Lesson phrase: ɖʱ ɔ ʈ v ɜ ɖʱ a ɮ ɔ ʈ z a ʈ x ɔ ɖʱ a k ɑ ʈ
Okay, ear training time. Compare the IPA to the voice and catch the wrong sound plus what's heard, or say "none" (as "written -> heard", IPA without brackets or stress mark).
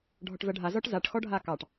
ɮ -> z